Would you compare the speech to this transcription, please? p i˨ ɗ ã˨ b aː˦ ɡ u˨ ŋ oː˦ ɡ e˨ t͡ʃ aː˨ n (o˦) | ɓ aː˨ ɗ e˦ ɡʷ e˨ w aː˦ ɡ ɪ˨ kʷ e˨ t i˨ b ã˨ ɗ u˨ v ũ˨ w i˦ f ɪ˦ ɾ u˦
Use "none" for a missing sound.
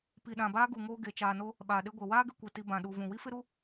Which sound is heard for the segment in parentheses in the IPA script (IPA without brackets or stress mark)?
o˦